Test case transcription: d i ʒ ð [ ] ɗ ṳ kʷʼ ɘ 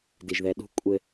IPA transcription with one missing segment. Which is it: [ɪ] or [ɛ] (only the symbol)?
ɛ